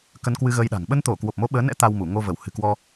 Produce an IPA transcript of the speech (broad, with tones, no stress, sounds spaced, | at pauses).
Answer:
k ə˧ n k w ɨ˧ ɣ əː˧ j ɗ a̤˨˩ ŋ ɓ ə˧ n t̪ o˧˩ k w o˨˩ p̚ m o˨˦ ɓ əː˨˦ n ɛ̰˧˥ t̪ a˧ w m u˧˩ ŋ o˧ v ə˧˩ w h ɨ̤˨˩ k w ɔ˧